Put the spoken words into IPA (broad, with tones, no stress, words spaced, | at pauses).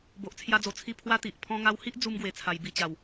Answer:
bo˨ʔt͡sʰja˧d͡zo˨˩t͡sʰi˧ pʰwa˦t̪i˨ʔ pʰɔ̃˧ŋa˧whi˦ʔ d͡zu˦mɡwe˨˩t͡sʰa˨˩j bi˧t͡ɕa˨˩w